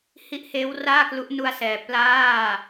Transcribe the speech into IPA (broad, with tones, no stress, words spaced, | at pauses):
hi˦˥ʔheː˦˥wraː˥˩klu˦˥ʔ nu˧a̯sɛː˨˩ plaː˥˩